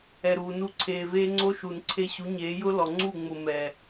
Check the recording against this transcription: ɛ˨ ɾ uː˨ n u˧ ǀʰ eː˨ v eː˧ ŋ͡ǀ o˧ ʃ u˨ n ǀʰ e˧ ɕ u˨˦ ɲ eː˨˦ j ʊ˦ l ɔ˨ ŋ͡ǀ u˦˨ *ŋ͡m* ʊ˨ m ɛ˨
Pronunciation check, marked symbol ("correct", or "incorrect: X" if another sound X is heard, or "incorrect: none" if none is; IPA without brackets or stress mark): correct